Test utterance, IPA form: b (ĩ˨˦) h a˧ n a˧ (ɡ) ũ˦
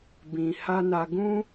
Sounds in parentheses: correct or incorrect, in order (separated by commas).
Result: incorrect, correct